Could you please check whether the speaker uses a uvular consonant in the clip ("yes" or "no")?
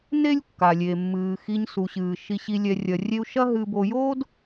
no